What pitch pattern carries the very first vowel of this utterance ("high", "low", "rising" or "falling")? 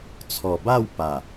low